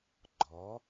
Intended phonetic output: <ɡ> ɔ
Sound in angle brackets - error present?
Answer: yes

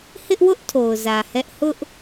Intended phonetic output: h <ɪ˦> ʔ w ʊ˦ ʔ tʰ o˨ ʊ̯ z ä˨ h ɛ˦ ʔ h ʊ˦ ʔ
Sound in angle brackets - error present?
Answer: no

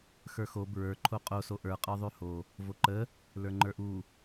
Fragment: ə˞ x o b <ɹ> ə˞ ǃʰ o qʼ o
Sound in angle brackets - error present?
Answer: no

